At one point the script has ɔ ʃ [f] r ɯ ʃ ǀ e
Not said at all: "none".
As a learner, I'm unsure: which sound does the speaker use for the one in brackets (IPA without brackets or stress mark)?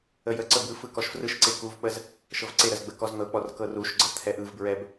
f